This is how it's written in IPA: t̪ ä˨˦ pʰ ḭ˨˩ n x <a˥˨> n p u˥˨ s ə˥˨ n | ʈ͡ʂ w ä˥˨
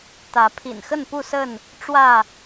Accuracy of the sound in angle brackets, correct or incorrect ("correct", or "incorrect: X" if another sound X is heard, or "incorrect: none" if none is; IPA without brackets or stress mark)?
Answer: incorrect: ə˥˨